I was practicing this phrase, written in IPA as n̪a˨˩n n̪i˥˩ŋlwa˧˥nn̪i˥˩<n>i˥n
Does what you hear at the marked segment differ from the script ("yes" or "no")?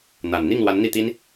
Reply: yes